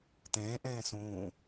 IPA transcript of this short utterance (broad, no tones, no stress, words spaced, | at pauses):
tẽːʔẽː sũː